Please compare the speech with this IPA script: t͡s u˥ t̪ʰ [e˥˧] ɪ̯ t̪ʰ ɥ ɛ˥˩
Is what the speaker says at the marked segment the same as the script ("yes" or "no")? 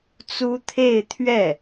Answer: yes